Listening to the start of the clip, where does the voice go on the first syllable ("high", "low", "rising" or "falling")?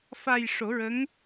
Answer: low